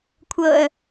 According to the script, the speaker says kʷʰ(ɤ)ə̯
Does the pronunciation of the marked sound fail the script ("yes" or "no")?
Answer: no